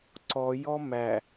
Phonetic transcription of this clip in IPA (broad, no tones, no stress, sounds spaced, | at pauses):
ǀ ɔ j ɔ m æ